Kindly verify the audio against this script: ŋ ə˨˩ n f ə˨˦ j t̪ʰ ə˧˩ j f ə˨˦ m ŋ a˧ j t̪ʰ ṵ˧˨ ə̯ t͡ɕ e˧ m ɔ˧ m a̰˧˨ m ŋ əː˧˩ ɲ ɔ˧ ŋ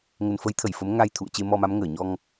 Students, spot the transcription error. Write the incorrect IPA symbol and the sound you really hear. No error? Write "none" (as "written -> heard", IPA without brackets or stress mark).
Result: a̰˧˨ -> a˨˦